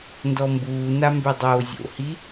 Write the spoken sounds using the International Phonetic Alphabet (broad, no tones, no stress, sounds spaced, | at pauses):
n d ɔ m b uː n a m b ø dˤ oː zʲ o̰ h i